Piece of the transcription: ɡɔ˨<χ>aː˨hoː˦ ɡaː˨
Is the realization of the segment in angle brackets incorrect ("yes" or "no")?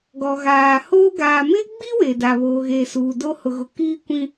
yes